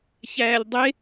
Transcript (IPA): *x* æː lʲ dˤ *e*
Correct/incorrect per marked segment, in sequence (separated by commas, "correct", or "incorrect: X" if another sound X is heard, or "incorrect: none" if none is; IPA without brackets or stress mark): incorrect: ç, correct